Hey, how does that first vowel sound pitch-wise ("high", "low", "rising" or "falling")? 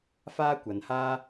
high